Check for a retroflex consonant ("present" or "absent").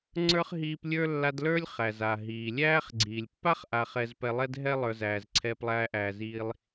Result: absent